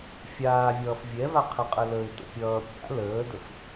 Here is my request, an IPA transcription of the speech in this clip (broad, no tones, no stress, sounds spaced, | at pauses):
fʲ aː vʲ ʌː f vʲ ɛ v a qʰ ə qʼ ə l ə ɪ̯ t ə̰ pʲ ʌː pʲ a̰ l əː d ə f